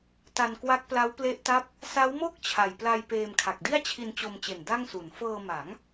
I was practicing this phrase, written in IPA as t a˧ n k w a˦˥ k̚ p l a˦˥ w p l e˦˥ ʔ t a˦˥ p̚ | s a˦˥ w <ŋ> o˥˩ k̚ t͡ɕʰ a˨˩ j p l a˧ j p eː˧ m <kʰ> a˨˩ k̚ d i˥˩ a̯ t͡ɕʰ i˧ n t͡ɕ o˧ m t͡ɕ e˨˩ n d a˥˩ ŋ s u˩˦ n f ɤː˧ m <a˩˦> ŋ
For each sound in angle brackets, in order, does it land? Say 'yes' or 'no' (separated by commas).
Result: no, yes, yes